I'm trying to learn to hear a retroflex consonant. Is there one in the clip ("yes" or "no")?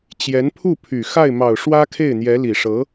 yes